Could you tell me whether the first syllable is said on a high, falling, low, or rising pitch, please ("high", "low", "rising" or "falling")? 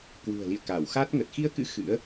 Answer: low